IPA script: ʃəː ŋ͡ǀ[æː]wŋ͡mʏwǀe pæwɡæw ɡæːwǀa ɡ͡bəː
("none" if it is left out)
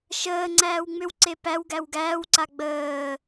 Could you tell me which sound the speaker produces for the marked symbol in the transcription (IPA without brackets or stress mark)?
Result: æː